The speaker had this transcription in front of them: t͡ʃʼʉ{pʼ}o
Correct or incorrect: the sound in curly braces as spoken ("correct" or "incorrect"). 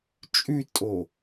incorrect